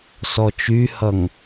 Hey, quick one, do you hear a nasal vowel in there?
no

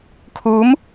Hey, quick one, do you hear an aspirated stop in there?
yes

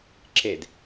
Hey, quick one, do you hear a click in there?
yes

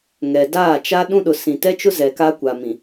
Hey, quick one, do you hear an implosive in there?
yes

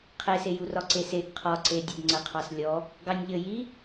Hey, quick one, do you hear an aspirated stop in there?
yes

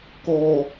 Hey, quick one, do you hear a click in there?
no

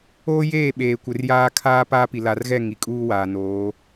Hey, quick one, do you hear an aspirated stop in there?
yes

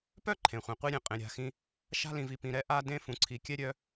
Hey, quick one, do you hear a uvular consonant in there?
yes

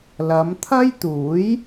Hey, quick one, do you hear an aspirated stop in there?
yes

